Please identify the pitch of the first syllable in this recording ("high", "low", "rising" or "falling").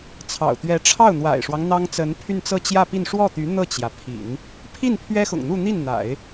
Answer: low